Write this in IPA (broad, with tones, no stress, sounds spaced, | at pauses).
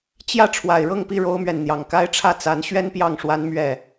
t͡ɕ j ä˥˨ ʈ͡ʂʰ w a˨˩ ɪ̯ ɻ ɤ˥˨ ŋ p i˥˨ ɻ o˦ ʊ̯ m ɥ ɛ˨ n n̪ j ɑ˨˩ ŋ k a˦ ɪ̯ ʈ͡ʂʰ ä˥˨ t͡s a˨˦ n ɕ ɥ ɛ˦ n p j ɑ˥˨ ŋ ʂ w a˦ n m ɥ ɛ˥˨